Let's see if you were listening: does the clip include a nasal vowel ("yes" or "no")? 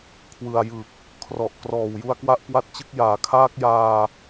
no